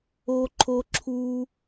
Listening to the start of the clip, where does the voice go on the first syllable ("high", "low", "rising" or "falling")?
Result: high